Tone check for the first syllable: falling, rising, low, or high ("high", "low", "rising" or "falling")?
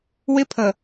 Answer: high